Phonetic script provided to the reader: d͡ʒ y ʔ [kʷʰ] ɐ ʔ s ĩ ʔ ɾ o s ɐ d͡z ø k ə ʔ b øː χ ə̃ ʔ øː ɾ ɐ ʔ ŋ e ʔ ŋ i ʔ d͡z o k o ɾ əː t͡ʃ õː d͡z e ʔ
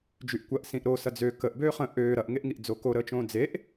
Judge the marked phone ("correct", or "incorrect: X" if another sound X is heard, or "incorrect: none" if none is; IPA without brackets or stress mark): incorrect: kʷ